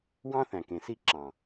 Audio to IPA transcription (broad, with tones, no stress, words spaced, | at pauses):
wɑ̃˦θæ̃˨kẽ˨si˦˨ ǁɑ̃˨